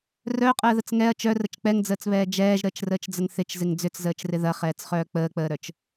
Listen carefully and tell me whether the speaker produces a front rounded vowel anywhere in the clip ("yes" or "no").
yes